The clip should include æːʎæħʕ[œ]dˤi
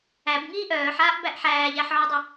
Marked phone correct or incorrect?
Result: correct